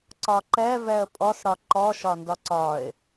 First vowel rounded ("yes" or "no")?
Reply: yes